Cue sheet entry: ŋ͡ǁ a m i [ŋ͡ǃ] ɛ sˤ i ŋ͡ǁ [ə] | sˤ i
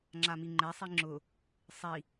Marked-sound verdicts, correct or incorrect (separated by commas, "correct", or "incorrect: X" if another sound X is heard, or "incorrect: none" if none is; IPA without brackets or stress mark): correct, incorrect: ʊ